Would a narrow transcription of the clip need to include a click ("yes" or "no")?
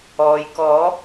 no